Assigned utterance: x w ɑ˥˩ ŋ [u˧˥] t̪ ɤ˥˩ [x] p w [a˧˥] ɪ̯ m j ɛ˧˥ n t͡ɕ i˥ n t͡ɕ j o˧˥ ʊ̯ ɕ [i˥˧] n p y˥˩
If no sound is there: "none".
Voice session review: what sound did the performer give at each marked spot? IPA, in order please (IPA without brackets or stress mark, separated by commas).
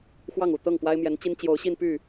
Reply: u˨˩, ŋ, a˥, i˥˧